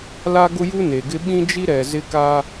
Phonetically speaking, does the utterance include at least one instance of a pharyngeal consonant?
no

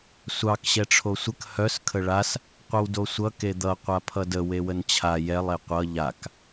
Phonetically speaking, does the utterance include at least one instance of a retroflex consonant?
yes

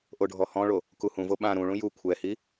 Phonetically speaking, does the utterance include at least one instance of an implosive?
yes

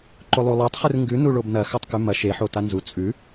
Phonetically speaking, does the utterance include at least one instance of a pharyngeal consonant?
yes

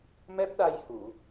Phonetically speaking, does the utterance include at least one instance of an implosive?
yes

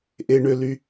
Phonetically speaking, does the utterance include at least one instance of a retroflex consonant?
yes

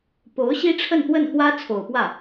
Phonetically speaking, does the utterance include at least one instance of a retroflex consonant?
yes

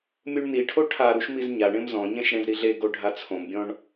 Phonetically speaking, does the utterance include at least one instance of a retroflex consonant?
yes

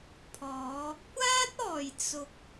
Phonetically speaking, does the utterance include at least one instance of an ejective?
no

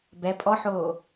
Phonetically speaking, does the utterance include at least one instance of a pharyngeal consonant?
yes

